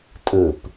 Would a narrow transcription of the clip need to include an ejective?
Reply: yes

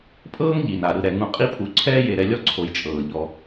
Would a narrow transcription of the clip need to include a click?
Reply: yes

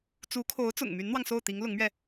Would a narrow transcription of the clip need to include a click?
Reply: no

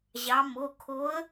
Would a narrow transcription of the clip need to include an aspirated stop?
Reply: yes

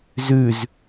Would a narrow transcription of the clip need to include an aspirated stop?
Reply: no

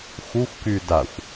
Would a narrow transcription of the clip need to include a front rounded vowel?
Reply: yes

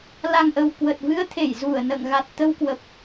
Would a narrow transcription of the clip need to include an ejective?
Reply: no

